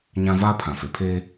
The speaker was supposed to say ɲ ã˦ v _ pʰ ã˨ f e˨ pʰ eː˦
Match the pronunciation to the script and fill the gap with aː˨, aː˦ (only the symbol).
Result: aː˦